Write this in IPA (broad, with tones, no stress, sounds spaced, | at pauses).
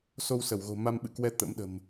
s o˧ w s ə˧˩ w ɣ o̤˨˩ m a˧ m ɓ ɨ̰˧˨ k w ɛ˧ t̪ ə̰˧˥ m ɗ ə̤˨˩ m